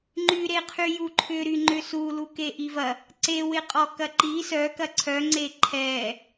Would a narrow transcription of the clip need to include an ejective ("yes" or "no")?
yes